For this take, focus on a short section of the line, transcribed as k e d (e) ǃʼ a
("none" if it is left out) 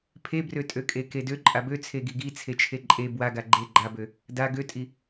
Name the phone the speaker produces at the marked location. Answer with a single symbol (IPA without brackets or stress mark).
ø